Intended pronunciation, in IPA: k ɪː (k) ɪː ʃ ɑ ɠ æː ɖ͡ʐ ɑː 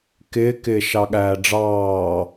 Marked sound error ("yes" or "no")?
no